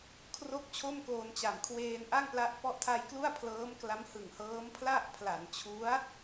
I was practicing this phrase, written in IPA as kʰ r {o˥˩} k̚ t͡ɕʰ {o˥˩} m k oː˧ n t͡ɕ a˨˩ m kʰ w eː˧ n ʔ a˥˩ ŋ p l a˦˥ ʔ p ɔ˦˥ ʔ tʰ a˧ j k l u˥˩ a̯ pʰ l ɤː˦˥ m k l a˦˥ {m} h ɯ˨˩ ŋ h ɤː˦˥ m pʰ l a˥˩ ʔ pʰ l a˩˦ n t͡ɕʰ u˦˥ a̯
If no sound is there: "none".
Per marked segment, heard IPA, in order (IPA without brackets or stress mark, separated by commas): o˥˩, o˥˩, m